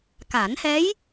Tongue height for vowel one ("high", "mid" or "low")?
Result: low